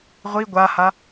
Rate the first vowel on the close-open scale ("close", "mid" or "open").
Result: close